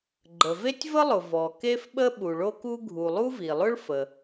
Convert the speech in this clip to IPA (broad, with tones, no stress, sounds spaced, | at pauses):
ɡ͡ǃ ə˩ v e˥ tʲ v ə˥ lˠ ʊ˩ v ɔ˩ k e˥ f ɓ ə˥ ɓ u˩ ɭ o˥ k u˥ ɡʱ u˩ lˠ u˥ v i˩ lˠ ʊ˥ ɭ f ə˩